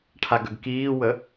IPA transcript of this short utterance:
ʈʰ a ɡ œ ɡ k iː w ə

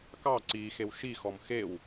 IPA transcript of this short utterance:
k ɑ ǀ i x e w ʃ i x ɔ m x e w

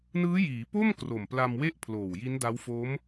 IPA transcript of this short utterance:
n ɯː˦˥ j iː˩˦ p o˥˩ m k r o˨˩ m p l a˧ m w e˥˩ ʔ pʰ l oː˨˩ w j i˦˥ n d a˦˥ w f o˦˥ m

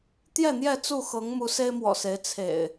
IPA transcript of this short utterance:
t̪ j ɛ˥˨ n̪ j ɛ˥˨ t͡s u˥˨ x ɤ˨˦ ŋ m u˨˦ s e˦ ɪ̯ m w ɔ̰˨˩ s e˨˦ ɪ̯ t͡sʰ ḛ˨˩ ɪ̯

